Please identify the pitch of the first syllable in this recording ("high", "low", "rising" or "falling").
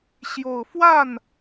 low